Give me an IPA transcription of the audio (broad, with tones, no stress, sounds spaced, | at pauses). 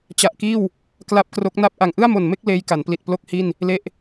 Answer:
t͡ɕ a˨˩ ʔ k iː˥˩ w | k l a˦˥ p̚ k r o˦˥ k̚ n a˥˩ p̚ ʔ a˨˩ ŋ ʔ ɯ˥˩ a̯ m o˨˩ n m e˥˩ k̚ l eː˦˥ j k a˩˦ n p l i˨˩ t̚ p l o˥˩ k̚ h i˥˩ n | l e˥˩ ʔ